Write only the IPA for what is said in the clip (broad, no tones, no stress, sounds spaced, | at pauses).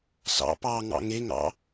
s ɑ̰ p ɑ ŋ ɑ̰ ŋ e ŋ ɑ̰